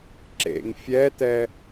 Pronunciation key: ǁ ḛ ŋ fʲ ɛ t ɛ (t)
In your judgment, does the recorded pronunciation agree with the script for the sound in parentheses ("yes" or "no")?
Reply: no